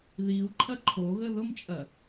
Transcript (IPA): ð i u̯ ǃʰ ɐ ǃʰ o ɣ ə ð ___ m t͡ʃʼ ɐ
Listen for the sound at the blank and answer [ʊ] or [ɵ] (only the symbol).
ʊ